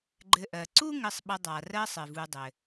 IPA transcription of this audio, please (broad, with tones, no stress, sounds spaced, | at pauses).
ɡ͡ǃ ɘ˨ ʔ ɜ˩ ǀ u˦ ŋ ɘ˨ sˤ ɓ ə˨ dˤ a˩ r ɜ˥ sˤ ɘ˩ v u˨ dˤ ɘ˩